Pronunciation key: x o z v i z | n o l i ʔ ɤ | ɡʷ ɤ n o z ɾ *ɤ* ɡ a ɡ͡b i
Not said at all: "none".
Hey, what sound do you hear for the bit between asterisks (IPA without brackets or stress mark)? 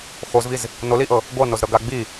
ɤ